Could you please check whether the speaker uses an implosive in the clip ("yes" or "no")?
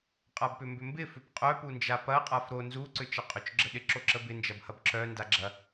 yes